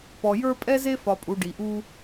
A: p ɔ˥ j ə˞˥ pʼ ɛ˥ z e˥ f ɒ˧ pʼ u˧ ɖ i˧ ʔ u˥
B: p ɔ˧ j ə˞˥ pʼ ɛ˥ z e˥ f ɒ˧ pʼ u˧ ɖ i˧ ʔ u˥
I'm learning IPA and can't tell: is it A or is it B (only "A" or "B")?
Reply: B